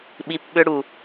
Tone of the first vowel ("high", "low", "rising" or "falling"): low